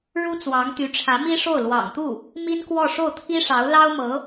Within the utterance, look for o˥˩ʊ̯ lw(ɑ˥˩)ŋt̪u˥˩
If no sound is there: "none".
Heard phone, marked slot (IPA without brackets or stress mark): ɑ̰˨˩